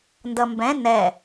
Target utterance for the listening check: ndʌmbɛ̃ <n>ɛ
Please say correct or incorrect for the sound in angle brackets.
correct